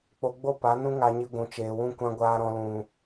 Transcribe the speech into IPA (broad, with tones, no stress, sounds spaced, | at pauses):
k͡p o˧ ɡ͡b o˦ p a˨˦ n ũ˦ ŋ a˧ ɲ i˧ ɡʷ ũ˨ t͡ʃ eː˨ w ũ˧ kʷ ã˧ ɡʷ aː˧ ɾ ɔ̃˧ l ũ˨